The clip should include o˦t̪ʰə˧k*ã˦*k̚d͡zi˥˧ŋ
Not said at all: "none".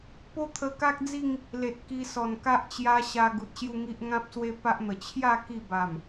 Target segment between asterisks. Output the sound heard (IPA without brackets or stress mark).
a˦